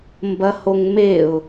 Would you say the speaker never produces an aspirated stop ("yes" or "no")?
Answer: yes